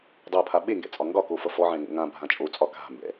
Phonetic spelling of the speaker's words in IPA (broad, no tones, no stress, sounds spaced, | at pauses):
dˤ ʌ pʰ a ɓ e ŋ ɡ ɛ̰ t͡sʼ ɒ ŋ ɡ ɒ k o f ʌ f ɔ ʕ ɛ̃ ŋ o̰ ŋ ã bʱ ã t͡ʃʼ o t͡sʼ ɒ k a̤ m b ɛ̰